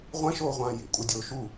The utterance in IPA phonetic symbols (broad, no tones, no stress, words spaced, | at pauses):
ʁʷɛ̃ʃoːʁʷãː jḛkʷʼadʲoː ʃu